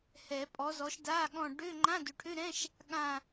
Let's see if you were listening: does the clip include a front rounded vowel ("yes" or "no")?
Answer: yes